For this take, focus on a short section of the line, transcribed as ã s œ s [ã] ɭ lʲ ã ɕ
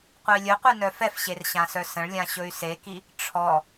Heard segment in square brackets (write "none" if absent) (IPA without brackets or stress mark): ə̃